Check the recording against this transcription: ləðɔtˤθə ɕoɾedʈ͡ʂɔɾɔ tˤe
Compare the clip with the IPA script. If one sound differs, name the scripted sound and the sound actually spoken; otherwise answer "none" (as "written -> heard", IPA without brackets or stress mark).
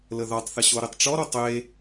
d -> tˤ